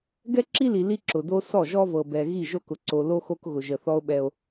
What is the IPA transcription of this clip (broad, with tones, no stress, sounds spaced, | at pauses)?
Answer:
ɡ ɛ˦ ǁ i˦ l i˨ l i˦ ǁ ʊ˨ d o˦ s ɔ˦˨ ʒ ɔ˦ v ɤ˨ b ɛ˨ ɣ i˦˨ ʒ o˦ k ʊ˨ ǀ o˨ l o˦ x o˦ k ɣ ʊ˨ ʒ ə˨ θ ɔ˦ o̯ ɓ ɛ˦ o̯